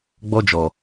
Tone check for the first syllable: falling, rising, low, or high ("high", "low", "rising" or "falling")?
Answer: high